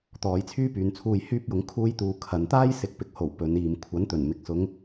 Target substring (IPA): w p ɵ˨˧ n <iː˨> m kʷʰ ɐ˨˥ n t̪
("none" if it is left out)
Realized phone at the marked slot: iː˨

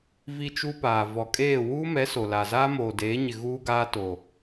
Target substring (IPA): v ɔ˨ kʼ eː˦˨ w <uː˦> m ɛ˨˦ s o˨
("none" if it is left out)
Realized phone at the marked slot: uː˦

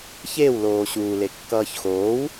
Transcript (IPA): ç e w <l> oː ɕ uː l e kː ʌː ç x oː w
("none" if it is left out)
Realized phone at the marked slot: l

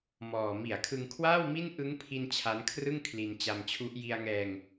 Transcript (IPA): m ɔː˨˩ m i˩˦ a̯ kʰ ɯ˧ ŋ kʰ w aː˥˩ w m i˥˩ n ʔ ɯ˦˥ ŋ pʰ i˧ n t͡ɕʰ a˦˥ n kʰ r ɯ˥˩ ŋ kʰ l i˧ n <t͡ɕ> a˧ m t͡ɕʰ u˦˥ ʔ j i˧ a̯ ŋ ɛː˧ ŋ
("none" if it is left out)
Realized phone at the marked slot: t͡ɕ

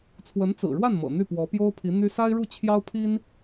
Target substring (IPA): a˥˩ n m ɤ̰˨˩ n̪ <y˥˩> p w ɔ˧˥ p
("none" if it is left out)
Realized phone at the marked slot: y˥˩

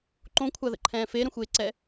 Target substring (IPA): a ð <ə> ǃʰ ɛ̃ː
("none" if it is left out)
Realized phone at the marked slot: ə̰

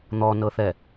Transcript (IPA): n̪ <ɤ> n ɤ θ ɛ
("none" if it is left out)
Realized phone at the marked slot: ɔ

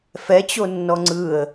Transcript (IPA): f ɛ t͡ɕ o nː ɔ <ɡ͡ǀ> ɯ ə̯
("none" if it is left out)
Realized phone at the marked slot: ŋ͡ǀ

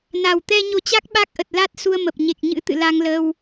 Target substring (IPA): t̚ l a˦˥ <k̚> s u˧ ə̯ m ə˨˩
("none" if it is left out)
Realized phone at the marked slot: t̚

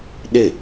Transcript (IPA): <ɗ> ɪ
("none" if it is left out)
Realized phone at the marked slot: ɗ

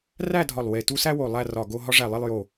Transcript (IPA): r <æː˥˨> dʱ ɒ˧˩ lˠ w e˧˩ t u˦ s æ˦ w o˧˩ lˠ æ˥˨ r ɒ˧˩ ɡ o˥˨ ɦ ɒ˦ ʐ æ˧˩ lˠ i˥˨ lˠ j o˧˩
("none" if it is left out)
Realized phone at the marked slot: æ˥˨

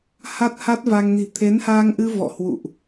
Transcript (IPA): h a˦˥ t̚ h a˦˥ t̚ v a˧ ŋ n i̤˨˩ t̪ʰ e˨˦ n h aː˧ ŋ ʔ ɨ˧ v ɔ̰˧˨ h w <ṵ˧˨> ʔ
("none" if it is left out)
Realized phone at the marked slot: ṵ˧˨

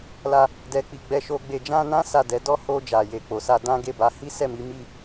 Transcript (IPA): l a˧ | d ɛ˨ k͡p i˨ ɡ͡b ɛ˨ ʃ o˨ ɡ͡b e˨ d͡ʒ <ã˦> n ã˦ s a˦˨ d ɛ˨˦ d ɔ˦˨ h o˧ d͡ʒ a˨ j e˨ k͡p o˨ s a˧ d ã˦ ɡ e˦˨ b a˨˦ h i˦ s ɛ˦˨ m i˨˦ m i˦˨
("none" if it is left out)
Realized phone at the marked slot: ã˧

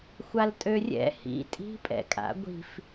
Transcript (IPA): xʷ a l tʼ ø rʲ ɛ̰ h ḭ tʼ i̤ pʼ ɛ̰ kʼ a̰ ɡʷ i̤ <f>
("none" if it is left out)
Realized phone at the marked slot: f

